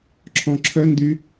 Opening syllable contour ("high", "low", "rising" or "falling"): low